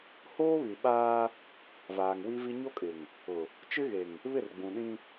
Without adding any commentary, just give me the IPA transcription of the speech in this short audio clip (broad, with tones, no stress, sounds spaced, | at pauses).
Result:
h oː˦ β i˨ ɓ aː˦ | v aː˨ ŋ w i˦ v i˦ ɲ o˦ kʼ ɪ˨ ŋ | ʊ˨ | t͡ʃ ɪ˦ ɣ e˨ ŋ | β ɪ˦˨ r ɡ͡b ũ˨ ɗ ĩ˦